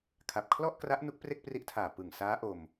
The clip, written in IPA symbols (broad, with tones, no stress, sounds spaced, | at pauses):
kʰ a˨˩ p̚ kʰ l ɔ˥˩ ʔ k r a˦˥ ʔ n u˦˥ k̚ p r e˥˩ k̚ p r i˦˥ ʔ tʰ aː˨˩ p ɯ˨˩ ŋ s aː˦˥ ʔ o˧ m